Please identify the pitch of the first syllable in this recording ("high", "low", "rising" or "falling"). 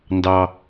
low